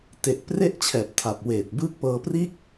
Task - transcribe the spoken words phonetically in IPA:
t e˨˩ ʔ p r e˥˩ ʔ t͡ɕʰ ɛː˨˩ p̚ tʰ a˨˩ p̚ w eː˨˩ t̚ b ɯː˦˥ k̚ p ɤː˧ p r iː˥˩ k̚

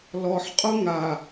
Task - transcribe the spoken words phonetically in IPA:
l ɔ ħ qʼ u ŋ a

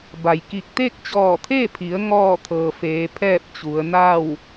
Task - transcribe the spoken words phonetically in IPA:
b a˩ j k i˧˩ k̚ t̪ e˥˨ k̚ t͡ɕ ɔː˧˩ t̪ʰ e˥˨ pʰ i˩˧ ə̯ ŋ ɔː˥˨ t̪ʰ ɤː˩ f eː˩˧ pʰ ɛː˥˨ p̚ t͡ɕ u˩˧ ə̯ n a˥˨ w

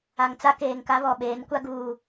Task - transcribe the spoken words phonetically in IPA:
a˨ ŋ t͡s a˦ k eː˨ ŋ k a˦ β ɔ˨ ɓ eː˨˦ n kʷ a˦ ɡ uː˨

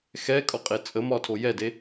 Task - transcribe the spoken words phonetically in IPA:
x ɛ kʼ ɒ qʼ e t͡sʼ ə m ɒ tʰ o j ɛ d e

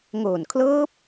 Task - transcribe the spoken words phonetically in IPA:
ŋ oː˨˩ n kʰ l ɤː˦˥ p̚

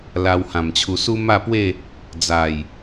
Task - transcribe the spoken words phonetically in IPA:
l a˧ w h ã˨˩ m t͡ɕʰ u˧ s u˦ m a˥˧ p w e˥˧ | d͡z a˨˩ j

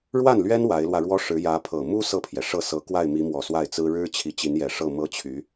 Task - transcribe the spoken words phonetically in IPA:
ɻ w a˥˩ n l ɥ ɛ˥ n w a˧˥ ɪ̯ l w ä˧ ɻ w ɔ˥ ʂ ɻ̩˧˥ j ä˧˥ pʰ ɤ˨˩ m u˥ s ɤ˥˩ pʰ j ɛ˩ ʂ ɤ˥˩ s ɤ˧˥ k w a˥˩ ɪ̯ m i˧˥ m w ɔ˨˩ s w a˥˩ ɪ̯ t͡s ɹ̩˥ ɻ ɻ̩˥ t͡ɕʰ i˧˥ t͡ɕ i˧˥ n j ɛ˨˩ ʂ ɤ˥˩ m ɤ˥ t͡ɕʰ y˧˥

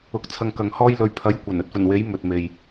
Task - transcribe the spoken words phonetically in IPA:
ʊ˨˥ k̚ t͡sʰ ɐ˧ ŋ k ɐ˨ ŋ h ɔː˥ j l ɵ˨ ɥ pʰ ɐ˨˥ j kʷ ɐ˨˩ n ɵ˧ t̚ f ɵ˨˩ n w e˨˥ j m ɵ˨ t̚ m e˨ j

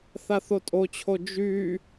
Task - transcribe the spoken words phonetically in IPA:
θ a θ o tʼ o t͡ɕʰ o d͡ʒ y

